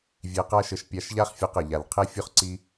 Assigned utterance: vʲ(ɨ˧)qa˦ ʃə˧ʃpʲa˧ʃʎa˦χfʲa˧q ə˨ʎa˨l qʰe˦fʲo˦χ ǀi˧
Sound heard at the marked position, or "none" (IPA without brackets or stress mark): e˧